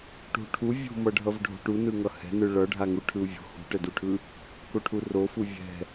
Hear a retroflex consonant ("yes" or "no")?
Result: yes